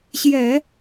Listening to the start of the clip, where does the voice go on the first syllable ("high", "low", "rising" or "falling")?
low